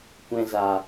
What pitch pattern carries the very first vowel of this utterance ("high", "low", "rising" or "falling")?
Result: low